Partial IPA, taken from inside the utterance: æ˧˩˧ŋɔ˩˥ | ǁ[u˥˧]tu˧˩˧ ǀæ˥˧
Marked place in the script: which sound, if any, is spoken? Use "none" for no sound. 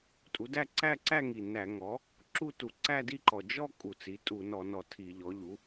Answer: u˥˧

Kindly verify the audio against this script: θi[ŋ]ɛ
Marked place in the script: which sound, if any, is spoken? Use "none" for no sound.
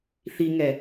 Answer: ŋ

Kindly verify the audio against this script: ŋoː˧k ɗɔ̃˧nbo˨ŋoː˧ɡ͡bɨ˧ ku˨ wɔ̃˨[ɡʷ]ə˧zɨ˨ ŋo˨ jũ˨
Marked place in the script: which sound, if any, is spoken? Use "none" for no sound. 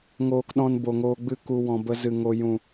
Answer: b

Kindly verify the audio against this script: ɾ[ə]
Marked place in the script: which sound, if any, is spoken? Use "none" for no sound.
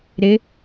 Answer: ɪ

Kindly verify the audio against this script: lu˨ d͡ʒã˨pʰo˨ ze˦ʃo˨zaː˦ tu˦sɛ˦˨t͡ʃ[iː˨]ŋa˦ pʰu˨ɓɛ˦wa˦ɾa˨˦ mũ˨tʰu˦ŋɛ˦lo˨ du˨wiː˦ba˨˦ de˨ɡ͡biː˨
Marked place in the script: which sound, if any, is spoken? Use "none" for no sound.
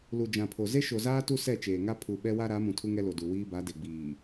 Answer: eː˨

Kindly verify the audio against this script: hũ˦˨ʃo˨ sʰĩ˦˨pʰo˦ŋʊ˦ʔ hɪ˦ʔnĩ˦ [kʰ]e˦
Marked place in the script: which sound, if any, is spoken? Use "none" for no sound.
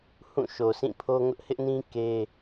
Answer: k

